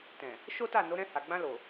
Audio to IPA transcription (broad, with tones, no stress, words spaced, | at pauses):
tɛ̃˨ | ʃo˦ta˦˨ no˨˦ɾɛ̃˧ha˨ ɡ͡bã˧ lo˨